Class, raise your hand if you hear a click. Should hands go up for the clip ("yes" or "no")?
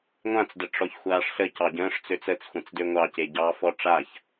no